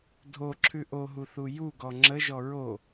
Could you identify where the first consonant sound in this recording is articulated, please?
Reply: alveolar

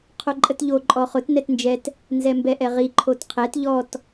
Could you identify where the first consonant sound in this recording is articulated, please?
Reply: uvular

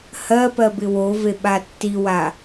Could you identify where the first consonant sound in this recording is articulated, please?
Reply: glottal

